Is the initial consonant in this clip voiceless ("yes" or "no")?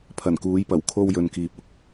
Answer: yes